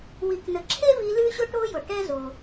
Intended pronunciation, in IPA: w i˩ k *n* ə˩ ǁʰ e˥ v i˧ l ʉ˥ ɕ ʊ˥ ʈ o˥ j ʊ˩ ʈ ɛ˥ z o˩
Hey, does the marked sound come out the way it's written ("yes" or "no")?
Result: yes